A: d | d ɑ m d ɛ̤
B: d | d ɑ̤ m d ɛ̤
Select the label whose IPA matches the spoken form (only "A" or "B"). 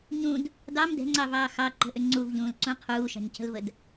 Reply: A